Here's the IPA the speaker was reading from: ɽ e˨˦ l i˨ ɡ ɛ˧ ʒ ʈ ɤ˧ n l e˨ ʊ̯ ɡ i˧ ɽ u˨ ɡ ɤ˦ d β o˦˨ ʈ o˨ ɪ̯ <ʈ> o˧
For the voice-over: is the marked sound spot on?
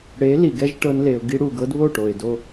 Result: no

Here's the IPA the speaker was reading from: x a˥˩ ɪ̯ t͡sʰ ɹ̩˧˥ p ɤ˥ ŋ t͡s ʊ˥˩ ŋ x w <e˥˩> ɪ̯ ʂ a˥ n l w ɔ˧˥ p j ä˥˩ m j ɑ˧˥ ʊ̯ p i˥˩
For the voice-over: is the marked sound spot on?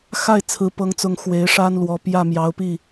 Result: no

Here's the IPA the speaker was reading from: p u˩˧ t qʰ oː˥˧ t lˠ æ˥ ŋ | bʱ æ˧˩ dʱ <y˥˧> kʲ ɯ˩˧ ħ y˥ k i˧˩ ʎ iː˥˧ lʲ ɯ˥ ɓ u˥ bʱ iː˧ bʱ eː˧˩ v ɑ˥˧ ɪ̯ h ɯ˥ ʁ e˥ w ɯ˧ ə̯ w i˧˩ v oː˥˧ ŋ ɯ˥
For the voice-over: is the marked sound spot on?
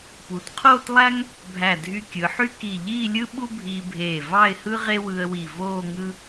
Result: no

